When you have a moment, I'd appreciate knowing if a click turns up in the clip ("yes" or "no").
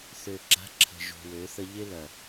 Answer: yes